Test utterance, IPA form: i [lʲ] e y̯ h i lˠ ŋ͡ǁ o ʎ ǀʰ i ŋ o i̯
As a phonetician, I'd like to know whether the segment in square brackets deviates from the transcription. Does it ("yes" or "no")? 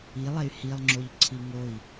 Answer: yes